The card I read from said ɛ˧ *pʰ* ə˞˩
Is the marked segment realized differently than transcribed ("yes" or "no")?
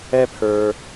no